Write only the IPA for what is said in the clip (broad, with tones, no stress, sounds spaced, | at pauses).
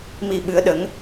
m i˧ ɓ ɨ˧˥ ə̯ ɗ ə˧˥ ŋ